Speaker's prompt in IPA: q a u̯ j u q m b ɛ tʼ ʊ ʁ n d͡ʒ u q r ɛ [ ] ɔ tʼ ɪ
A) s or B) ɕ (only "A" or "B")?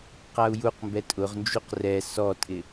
A